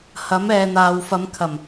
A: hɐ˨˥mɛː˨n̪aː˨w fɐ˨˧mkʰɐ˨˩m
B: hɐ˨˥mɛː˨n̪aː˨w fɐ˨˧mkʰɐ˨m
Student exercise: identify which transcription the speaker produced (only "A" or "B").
A